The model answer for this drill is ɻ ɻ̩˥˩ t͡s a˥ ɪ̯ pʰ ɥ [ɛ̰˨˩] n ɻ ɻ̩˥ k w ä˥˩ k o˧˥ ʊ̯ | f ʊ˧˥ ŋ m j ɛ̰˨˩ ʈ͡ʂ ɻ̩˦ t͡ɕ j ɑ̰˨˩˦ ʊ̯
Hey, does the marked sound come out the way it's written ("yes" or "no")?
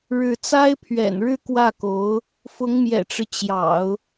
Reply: yes